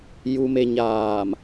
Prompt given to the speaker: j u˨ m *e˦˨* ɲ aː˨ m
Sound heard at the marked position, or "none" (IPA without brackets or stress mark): e˨